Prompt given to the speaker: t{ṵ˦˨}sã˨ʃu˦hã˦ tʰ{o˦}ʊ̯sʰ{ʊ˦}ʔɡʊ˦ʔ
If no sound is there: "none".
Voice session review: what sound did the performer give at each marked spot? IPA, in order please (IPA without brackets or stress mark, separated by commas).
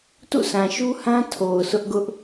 ṵ˦˨, o˨, ʊ˦